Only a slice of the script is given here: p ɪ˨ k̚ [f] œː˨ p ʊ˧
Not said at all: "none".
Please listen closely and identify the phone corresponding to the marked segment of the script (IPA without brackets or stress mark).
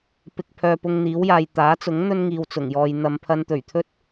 pʰ